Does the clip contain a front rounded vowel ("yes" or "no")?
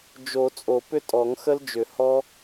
yes